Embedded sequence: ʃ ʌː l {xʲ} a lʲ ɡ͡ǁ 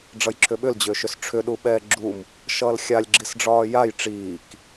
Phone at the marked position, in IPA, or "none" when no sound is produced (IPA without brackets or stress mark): xʲ